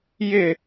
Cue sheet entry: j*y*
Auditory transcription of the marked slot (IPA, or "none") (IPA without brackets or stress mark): ɪ